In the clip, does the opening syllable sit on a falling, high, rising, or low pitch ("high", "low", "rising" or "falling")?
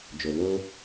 low